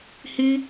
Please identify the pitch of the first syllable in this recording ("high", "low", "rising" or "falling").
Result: high